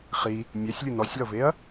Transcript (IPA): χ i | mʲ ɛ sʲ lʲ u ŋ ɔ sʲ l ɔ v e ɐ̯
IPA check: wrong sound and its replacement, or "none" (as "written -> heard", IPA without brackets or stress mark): ŋ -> n